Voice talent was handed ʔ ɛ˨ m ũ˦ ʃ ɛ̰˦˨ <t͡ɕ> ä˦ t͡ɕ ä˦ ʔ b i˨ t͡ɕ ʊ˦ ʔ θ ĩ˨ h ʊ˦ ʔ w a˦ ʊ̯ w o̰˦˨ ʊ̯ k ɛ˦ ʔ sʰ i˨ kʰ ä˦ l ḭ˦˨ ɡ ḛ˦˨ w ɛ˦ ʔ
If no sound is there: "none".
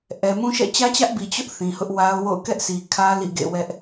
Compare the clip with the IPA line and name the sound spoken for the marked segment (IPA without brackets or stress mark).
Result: t͡ɕ